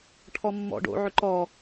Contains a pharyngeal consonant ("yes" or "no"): yes